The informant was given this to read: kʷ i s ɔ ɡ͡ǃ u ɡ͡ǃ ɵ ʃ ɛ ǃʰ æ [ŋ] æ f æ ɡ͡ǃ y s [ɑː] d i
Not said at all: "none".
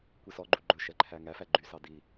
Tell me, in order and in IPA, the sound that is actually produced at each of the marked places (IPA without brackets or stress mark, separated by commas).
ŋ, ɑ